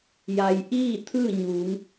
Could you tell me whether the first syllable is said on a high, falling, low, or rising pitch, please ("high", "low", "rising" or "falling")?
low